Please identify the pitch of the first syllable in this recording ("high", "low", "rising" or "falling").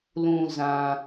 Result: low